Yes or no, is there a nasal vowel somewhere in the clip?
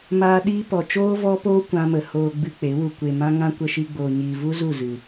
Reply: yes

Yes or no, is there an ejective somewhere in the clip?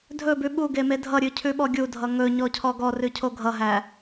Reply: no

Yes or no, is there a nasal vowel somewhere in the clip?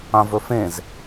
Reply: yes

